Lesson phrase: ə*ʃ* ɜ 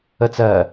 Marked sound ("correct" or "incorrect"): incorrect